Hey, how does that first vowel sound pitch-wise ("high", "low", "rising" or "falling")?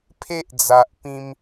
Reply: high